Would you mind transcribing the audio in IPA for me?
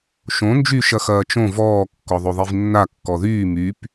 ʃõ nd͡ʒy ʃɐxɐːt͡ʃõ vɔː kːɔðˤoðˤivnːa kːɔðyː myp

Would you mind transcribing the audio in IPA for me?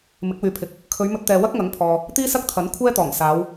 mɪ˨˥k̚wyː˨pʰɪ˨˥k̚ | kʰɵ˨˧ɥmɵ˧t̚t̪ɛː˨ wɐ˥k̚ŋɐ˨˥ŋpʰɔː˨ | t̪iː˥sɐ˥k̚t̪ʰɐ˨˥n kʷʰɛː˥t̪ɔː˨˩ŋ saː˨˧w

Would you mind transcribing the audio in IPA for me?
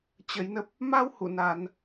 t͡ɕə˨˦jnə˦˥p̚ | ma˧whṵ˧˨ naː˧n

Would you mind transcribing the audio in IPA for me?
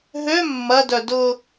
ɦø mːɐdœ dʊ

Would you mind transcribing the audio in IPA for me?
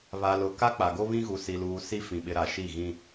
βa˨lʊ˨ ka˦k͡pa˨ɡo˦ βĩ˦ɣu˨si˨luː˨ si˦fĩ˨ɓɪ˨ ɾa˨ʃi˦˨ ɣĩ˦

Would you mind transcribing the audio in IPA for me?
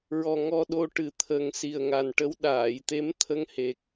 ɹɔ˨˩ ŋɔ˧ɗo˧ʈɨ˨˩˦t̪ʰə˨˩˦ŋ si˨˩ə̯ŋa˨˩nʈə˧˥w ɗaː˨˩˨jt̪e˧˥m t̪ʰə˧ŋhe˨˩k̚

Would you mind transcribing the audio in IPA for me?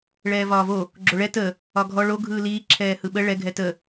ɭɛːvɒːvo | ɡ͡ǁoɭɛ tə | ɒɡʱɔ ɭo ɡʱɯːliː ǁʰɛːhɯɓə ɭɛ ɡʱɛtə

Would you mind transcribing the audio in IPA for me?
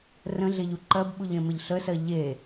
rə̃ɮe ʎuǃɜbɓuʎ ẽmeʎɬəsɜ ʎe

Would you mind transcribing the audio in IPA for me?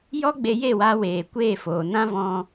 jɔ˦ɡ͡be˧je˦˨waː˧ weː˨kʷeː˦˨ foː˨nã˦ vɔ̃˧

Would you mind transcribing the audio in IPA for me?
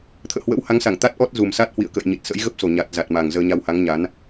t̪ʰə̰ː˧˨hwə̰˧˥wha˨˦ŋsa˧˩ŋ t̪a˦˥t̚ ʔɔ˦˥t̚zu˨˩msa˦˥t̚ hwḭ˧˨ə̯kə̰ː˧˨jɲi˨˩t̚sə̰˧˥j ɣə˦˥p̚so˨˩ ɲa˨˩t̚ za˨˩t̚ma˨˩ŋ zəː˧ɲa˧wha˨˦ŋɲa˨˦n

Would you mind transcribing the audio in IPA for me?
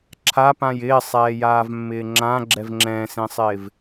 ǁʰapãj ɪːsˤɛːjaːvmːɪː ŋ͡ǁãɡ͡ǁɛv ŋ͡ǁɛ̃ːsẽsˤɪːv

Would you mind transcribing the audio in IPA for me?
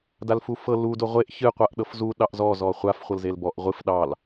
dalfufɤ lu doʁʷeʔ çɨ qʷaʔɗɤfzu ɗɑʔzɔ zɔχʷaf χʷɤlzelbɔʔ ʁʷɨf ɗɑl

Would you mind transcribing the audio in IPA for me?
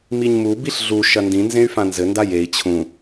miɲmu biɬɮu ʃɐndĩ nzẽy̯fãnzɘ ndajei̯ t͡ɕʰũ

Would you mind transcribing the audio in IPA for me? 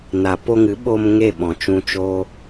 na˨ po˧ŋɨ˨˦ɓo˧m ŋe˦˨ɓɔ̃˨t͡ʃũ˧t͡ʃoː˦

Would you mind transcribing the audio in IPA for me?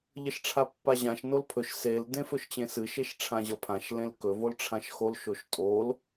ʎəʃʈ͡ʂʰapːaʑãʃ nolpʰɵʃ sel dẽfɵʃt͡ɕẽsɨ ʃeʃʈ͡ʂʰãʑʌpʰãʃ lẽlkɵ volʈ͡ʂʰãʃxol ʃoʃtʼol

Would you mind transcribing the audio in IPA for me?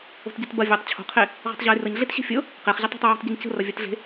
o̤tɟɤtbɐ vʲatˤ t͡ɕʰo̤qʰe | ʁo̤tˤʑajrəɲ ɮetɕe̤fʲɤ | qeχʑə tˤo̤tˤjʊjo̤tˤɟeɲ cə̤rɐ vʲatɮe̤

